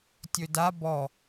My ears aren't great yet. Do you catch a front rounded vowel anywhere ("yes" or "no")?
no